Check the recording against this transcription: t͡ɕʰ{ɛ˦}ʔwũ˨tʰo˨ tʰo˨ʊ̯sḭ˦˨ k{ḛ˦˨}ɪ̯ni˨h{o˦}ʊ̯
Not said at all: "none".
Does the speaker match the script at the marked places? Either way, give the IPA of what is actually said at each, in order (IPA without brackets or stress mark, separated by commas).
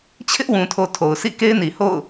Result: ɪ˦, e˦, o̰˦˨